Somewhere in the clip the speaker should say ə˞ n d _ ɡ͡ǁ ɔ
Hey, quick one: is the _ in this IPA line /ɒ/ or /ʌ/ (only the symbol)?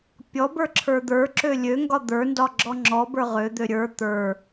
ɒ